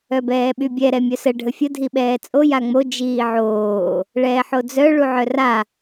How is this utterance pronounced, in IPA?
œ b ɛː ɓ y bʲ ɛ ɾ ɛ mʲ œ s ə ɖʱ ə fʲ ə dʱ i ɓ ɛː t͡sʼ o j a ŋ͡m o d͡ʒ iː ʕ oː | ɭ ɛː ħ o d͡z œ ɭ u ʕ œ r a

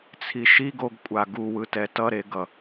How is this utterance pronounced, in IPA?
t͡sʰ i ʃ i ɡ o ɡ kʷʼ a ɡ u w ɯ t ɛ t ʌ ɾ e ɡ ʌ

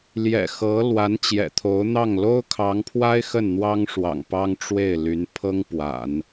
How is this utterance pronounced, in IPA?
l j ɛ̰˨˩ x ɤ˧˥ l w a˧˥ n t͡ɕ j ɛ̰˨˩ t̪ʰ o˧˥ ʊ̯ n̪ ɑ˥˩ ŋ l o˥ ʊ̯ kʰ ɑ˧˥ ŋ pʰ w a˥ ɪ̯ x ə˥˩ n n̪ w ɑ˥ ŋ ʂ w ɑ̰˨˩ ŋ p ɑ˥ ŋ ʈ͡ʂ w e˥˩ ɪ̯ l y˧˥ n pʰ ɤ˥ ŋ p w a̰˨˩˦ n

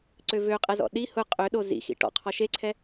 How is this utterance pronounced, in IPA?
ǀ ø v ø qʼ ɛ z ɔ̰ ɗ i h ʊ qʼ ø ɗ o z ḭ x ḭ ʈ ɔ̰ qʰ ɔ ʃ e ǀʰ ɛ

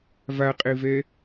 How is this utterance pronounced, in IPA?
v a qʼ e v ɛ

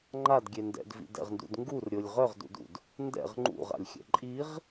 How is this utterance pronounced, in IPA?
ŋ͡ǃ a d ɡʲ e n d ɛ̰ d v ḭ d ɛ̰ ʁ n d ṵ d ŋ ɡ u r ɾʲ o lʲ ʁ œ ʁ d ṵ d ṵ d | n d ɛ̰ ʁ ŋ͡ǃ ṵ ʁ a̰ lʲ xʲ ɛ̰ ǃʼ i ʁ

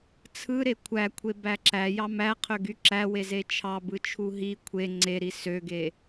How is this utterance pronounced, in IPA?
t͡sʰ ɯ ɾ e kʷʰ æ kʷʰ e b æ ǁ æ j ɑ m æ qʰ ø ɡ y ǁ æ w e z e t͡ʃʰ ɑ b ɯ t͡ʃʰ u ɦ i kʷʰ e ŋ͡ǀ e ɾ i s ø ɡ e

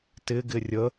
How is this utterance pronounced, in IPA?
t ɪ ɡ ɪ rʲ ə

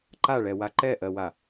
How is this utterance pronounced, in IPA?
ǃ a ɭ ɛ w a ǃ ɛ ʔ ɜ w a

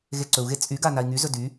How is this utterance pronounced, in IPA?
ɣ e ǀ ɵ u̯ ɣ e t͡sʼ y ɡ a n a i̯ ŋ y z ɵ d y

